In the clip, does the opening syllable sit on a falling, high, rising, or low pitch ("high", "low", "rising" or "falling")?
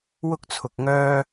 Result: high